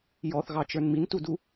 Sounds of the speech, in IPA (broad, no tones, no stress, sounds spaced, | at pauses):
j ɔ θ ɣ ɑ t͡ʃ ə˞ n m i n t u d u